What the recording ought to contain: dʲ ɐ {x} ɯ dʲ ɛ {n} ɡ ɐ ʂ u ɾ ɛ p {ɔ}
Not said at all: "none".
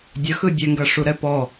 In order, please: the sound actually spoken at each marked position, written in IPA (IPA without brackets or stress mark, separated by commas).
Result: x, ŋ, ɔ